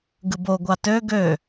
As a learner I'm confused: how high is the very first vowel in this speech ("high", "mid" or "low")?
high